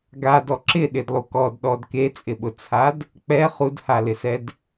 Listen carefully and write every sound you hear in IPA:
ɡ a d ɔ ǁ ɪ ɗ ɪ d lˠ u k ɔ d ɗ ɔ d k e t͡sʼ ɪ ɓ ʊ t͡sʰ a d | k͡p ɛ χ u d h a l ɪ s ɛ d

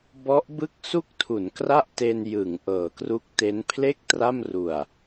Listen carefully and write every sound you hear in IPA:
b ɔ˦˥ ʔ b ɯ˥˩ k̚ s u˥˩ k̚ tʰ u˩˦ n k r a˥˩ ʔ t e˧ n j ɯ˩˦ ŋ ʔ ɤː˩˦ k r u˦˥ k̚ t e˦˥ n pʰ l e˥˩ k̚ t r a˥˩ m r u˨˩ a̯

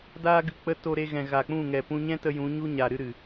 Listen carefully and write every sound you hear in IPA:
d aː˧ ɡ ɨ˨ k͡p ə˧ t o˧ ɾ e˧ ɣ ɛ̃˨ ɣ a˨ k͡p ũ˦˨ ŋ ɛ˨ p ũ˧ ɲ ɛ̃˦ t ə˧ j ũ˨˦ ɲ u˦ ɲ a˨ ɾ ɨ˦ ɾ ɨ˨

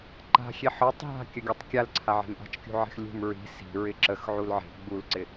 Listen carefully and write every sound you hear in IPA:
ǃ a̤ xʲ e ħ ɔ tˤ ɦ a̤ kʲ ə ɡʲ ɔ tˤ kʲ a l ǀʰ a ʕ e̤ m ʔ a̤ t͡ʃ kʲ ṳ ʕ e̤ x lʲ ṳ m ɹ i̤ s i̤ ɹ ɪ ǁ ə x ʕ u l ʕ e̤ ɡ͡b u l ǀ ɪ

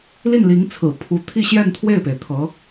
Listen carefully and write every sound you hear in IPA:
l i˥˩ n l i˧˥ ŋ t͡sʰ ɹ̩˨˩ pʰ u˧˥ t̪ʰ i˥˧ ɕ j ɛ˥˧ n t̪ʰ w e˥˩ ɪ̯ p e˩ ɪ̯ t̪ʰ ɤ˧˥

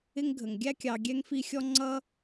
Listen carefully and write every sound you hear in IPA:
ɪ˦ ŋ ɡʱ ə˩ ŋ ɡʲ æ˥ kʲ ɑ˨ ɡʲ ɛ˥ ŋ f i˦ xʲ ɔ˥ ŋ͡ǀ ʌ˥

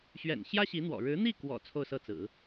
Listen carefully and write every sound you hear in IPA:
ɕ ɥ ɛ̰˨˩ n ɕ j ä˥ ɕ i˧˥ n̪ w ɔ̰˨˩ ɻ ɻ̩˧˥ n̪ i˥˩ k w ɔ̰˨˩ t͡sʰ o˥˧ ʊ̯ s ɤ˥˩ t͡s ɹ̩˨˩˦

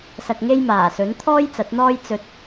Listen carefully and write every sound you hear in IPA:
s ɐ˧ k̚ ŋ e˥ j m aː˨˩ s ɵ˨˥ n t̪ʰ ɔː˥ j t͡s ɐ˨˥ t̚ n̪ ɔː˥ j t͡s ɵ˧ t̚

